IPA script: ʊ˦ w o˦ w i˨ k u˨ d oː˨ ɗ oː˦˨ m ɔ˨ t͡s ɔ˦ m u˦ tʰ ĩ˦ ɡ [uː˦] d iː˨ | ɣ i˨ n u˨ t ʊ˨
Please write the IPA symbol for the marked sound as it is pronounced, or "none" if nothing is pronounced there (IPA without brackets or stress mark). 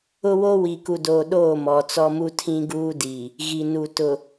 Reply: uː˦